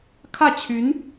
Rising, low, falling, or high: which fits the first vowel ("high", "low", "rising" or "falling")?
falling